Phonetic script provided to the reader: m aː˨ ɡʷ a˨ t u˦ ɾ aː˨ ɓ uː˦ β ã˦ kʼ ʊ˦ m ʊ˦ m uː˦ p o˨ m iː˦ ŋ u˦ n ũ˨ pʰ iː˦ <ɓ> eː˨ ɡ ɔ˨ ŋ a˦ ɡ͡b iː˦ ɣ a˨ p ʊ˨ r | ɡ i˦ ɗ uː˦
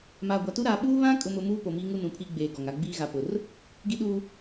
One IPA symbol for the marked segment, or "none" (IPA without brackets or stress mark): ɡ͡b